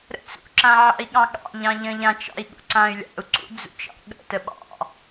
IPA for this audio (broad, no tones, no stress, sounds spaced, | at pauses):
ɾ ə̰ t͡s ṵ ǁ ã ʕ ɑ̰ i̯ ɠ ɑ̃ ɠ ɑ̰ ʎ ɑ̃ ʎ ə̃ ʎ ã t͡ʃ ɑ̰ i̯ ɠ ṵ ǀ ã y̯ lʲ ɑ̰ u̯ ǀ ṵ d͡z ṵ t͡ʃ ɑ̰ ɠ ə̰ t ə ɓ ɑ̰